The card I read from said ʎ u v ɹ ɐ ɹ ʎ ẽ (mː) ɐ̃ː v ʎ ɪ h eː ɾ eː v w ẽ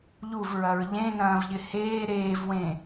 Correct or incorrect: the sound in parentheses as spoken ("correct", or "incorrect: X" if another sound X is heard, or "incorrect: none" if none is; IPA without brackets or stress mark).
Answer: incorrect: n̪